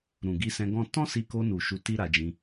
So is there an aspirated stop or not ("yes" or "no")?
no